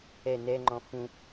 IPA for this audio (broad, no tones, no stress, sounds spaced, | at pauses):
ɛ n ɛ ŋ͡ǃ ɔ̃ f ũ